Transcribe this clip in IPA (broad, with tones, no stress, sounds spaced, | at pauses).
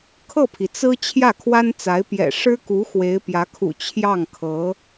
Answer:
kʰ ɤ˥˩ pʰ i˩ t͡s ɹ̩˥ t͡ɕʰ j ä˥˩ kʰ w a˥ n t͡s a˧˥ ɪ̯ p j ɛ̰˨˩ ʂ ɻ̩˥ k u˧˥ x w e˧˥ ɪ̯ p j ä˧˥ kʰ ṵ˨˩ t͡ɕʰ j ɑ˥˩ ŋ kʰ ɤ˧˥